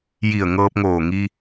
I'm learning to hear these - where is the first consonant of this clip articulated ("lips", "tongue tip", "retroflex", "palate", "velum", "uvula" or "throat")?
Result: palate